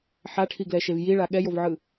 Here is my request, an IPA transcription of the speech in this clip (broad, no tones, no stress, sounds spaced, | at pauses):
ħ a ʈʰ i ɡ l ɛ ʃ e v j i ɭ a ɠ ɛ j o v ʕ ɯ